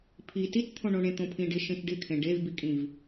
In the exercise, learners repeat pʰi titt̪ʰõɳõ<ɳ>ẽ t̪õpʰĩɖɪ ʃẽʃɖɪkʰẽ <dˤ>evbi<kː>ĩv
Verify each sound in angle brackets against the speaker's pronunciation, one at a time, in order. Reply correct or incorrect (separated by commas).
correct, incorrect, incorrect